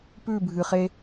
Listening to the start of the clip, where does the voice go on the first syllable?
falling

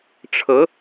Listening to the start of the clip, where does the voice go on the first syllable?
rising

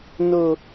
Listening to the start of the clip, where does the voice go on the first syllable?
low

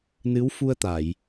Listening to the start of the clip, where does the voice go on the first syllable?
rising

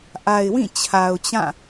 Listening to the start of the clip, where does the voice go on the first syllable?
low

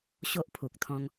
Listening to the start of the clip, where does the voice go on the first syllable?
high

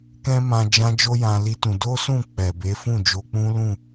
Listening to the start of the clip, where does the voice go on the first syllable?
high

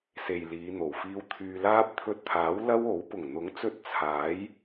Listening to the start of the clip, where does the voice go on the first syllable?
low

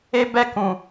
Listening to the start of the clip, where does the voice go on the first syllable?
high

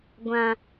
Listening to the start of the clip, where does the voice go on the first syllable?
low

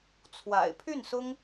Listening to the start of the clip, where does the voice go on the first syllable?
low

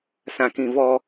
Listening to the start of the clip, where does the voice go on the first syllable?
high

